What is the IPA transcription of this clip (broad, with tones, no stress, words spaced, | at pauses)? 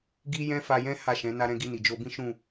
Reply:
ɡi˦ jɛ̃˦fa˧jɛ̃˦ ha˦˨ʃɛ̃˨˦ na˧ɾɛ̃˧ɡi˧ ni˨d͡ʒo˧bĩ˦ ʃũ˦˨